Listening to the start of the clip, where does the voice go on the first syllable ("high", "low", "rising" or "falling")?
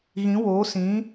rising